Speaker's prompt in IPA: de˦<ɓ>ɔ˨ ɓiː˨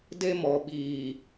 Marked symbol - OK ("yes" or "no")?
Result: no